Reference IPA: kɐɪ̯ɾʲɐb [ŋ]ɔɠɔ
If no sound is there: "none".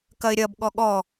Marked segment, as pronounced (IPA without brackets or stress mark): ɠ